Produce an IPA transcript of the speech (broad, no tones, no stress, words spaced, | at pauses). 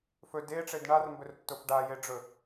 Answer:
fɵ deʈ͡ʂed ɳarmbɵrtːof ɖajeɖ͡ʐɵ